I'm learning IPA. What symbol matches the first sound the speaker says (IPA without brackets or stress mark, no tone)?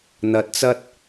n̪